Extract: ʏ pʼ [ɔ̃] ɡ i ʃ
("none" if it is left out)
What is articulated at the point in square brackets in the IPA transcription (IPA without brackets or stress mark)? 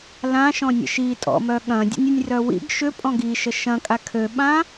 ɔ̃